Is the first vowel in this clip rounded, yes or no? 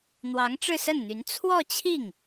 no